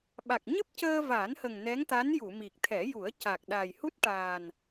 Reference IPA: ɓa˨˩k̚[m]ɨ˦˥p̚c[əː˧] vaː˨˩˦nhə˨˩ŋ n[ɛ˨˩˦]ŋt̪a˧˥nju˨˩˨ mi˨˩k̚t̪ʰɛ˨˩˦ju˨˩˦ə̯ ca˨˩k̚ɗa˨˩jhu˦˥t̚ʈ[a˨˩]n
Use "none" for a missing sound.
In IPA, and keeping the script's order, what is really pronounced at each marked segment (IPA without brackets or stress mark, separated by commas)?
ɲ, əː˧, ɛ˧˥, aː˨˩